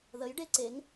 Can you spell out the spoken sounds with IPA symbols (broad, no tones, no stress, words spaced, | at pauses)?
ðəj ɖeǀeŋ